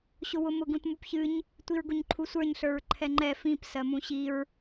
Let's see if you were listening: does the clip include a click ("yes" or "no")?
yes